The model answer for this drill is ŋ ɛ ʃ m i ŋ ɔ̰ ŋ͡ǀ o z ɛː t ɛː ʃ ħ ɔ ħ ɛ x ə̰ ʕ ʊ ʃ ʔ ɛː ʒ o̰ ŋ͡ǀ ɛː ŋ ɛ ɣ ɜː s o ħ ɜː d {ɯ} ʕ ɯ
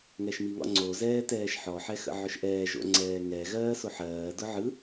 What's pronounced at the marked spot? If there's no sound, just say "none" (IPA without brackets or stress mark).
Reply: ʊ